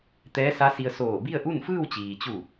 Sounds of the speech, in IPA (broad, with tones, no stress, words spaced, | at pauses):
t̪ɛː˧˥sa˧˥si˧ə̯ soː˧˩bi˥˨ə̯ʔu˥˨n fɯː˥˨wt͡ɕiː˩t͡ɕu˧˩